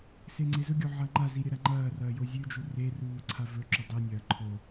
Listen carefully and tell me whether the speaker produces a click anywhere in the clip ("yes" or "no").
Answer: yes